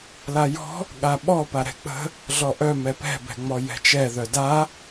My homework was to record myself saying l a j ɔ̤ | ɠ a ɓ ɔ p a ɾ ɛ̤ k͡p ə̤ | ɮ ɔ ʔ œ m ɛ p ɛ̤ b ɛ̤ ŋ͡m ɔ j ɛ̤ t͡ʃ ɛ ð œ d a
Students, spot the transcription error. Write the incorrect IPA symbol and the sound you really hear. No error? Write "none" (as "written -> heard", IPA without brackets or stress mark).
none